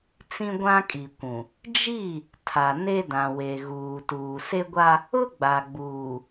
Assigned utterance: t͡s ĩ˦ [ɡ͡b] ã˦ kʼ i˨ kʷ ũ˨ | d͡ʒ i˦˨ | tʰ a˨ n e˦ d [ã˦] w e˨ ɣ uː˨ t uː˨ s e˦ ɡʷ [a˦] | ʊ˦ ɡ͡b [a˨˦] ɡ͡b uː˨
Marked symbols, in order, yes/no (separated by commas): no, no, yes, no